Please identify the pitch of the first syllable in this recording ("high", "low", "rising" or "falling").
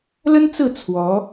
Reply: high